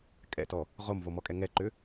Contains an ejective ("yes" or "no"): yes